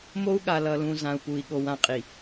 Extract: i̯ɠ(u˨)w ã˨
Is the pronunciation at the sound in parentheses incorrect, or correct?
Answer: incorrect: o˨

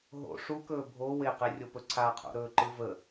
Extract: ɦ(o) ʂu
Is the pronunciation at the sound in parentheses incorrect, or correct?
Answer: incorrect: o̰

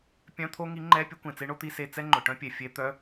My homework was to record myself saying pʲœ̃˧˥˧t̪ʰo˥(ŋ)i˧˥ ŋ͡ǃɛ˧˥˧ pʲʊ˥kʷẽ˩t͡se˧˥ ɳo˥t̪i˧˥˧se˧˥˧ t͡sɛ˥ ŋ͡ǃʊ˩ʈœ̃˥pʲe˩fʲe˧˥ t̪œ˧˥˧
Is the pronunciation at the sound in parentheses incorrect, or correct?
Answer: correct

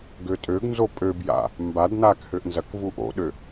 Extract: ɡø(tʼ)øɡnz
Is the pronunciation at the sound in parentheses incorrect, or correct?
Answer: correct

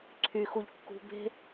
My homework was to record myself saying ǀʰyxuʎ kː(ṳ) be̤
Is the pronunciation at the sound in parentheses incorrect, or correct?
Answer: correct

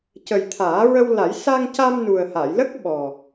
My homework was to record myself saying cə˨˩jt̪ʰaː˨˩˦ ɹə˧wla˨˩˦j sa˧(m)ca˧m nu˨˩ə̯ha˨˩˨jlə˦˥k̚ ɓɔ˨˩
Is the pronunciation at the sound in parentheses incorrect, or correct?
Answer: incorrect: ŋ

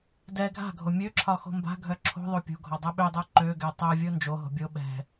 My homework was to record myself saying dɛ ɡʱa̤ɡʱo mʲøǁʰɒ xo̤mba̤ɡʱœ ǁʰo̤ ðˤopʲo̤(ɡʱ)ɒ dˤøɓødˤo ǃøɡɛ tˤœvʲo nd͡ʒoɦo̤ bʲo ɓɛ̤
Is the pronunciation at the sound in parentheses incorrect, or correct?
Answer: correct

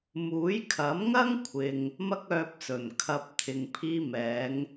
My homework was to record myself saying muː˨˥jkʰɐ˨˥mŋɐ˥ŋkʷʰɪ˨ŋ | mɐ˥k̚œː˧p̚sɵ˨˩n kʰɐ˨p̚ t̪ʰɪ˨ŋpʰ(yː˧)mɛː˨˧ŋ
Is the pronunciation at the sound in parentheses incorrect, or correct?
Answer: incorrect: iː˧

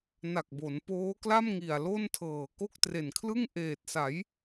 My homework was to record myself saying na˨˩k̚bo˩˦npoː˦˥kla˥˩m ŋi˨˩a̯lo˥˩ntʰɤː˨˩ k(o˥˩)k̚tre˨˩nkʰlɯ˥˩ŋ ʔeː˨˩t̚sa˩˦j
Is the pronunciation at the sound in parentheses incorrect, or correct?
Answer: correct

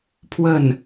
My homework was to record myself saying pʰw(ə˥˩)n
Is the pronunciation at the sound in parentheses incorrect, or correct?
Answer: correct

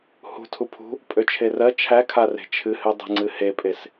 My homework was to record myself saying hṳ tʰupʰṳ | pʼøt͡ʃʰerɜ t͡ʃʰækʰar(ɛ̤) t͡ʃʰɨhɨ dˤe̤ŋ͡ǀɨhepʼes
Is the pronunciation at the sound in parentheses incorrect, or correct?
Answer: incorrect: e̤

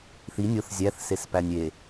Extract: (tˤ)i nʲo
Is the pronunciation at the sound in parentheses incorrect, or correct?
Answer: incorrect: θ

